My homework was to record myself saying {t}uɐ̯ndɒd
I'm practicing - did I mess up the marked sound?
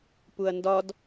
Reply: yes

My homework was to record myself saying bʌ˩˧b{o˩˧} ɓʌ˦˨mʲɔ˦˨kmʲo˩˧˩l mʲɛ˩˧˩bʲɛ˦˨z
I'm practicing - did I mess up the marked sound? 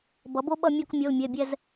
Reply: yes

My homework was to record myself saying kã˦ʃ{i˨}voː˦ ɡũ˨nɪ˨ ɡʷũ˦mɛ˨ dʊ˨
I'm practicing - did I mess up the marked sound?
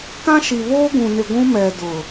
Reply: no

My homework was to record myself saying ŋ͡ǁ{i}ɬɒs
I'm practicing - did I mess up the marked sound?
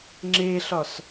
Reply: yes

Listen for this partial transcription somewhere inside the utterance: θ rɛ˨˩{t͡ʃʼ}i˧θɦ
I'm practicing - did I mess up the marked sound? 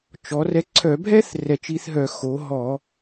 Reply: yes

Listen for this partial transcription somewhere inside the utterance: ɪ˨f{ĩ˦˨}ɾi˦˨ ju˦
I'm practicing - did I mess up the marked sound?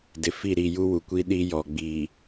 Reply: yes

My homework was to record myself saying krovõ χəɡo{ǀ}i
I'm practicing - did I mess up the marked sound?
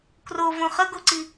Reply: no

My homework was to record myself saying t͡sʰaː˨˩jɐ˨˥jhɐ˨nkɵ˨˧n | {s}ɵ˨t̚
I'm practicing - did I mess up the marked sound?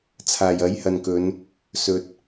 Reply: no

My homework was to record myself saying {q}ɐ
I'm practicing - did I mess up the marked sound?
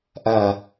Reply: yes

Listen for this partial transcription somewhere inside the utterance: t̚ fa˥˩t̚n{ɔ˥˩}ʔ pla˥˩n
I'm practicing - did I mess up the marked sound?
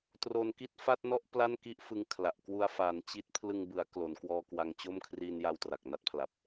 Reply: no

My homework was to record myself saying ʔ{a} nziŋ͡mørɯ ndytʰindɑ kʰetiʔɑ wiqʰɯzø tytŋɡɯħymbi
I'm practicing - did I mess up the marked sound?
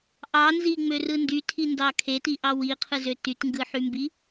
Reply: yes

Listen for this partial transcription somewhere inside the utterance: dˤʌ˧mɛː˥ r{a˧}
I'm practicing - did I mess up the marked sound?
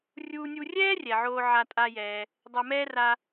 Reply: no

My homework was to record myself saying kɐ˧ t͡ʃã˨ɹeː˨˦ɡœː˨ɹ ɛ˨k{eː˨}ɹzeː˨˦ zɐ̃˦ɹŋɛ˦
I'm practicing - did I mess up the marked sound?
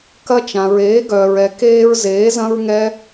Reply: yes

